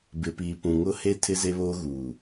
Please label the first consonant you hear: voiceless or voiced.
voiced